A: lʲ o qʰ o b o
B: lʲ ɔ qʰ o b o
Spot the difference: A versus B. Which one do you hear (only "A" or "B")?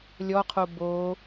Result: B